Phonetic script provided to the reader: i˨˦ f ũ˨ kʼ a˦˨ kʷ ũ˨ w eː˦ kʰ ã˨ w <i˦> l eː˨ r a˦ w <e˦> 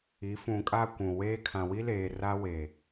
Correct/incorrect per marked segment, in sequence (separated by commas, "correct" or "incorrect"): correct, incorrect